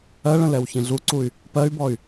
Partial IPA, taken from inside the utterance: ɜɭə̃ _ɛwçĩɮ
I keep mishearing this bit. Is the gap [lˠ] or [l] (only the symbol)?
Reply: l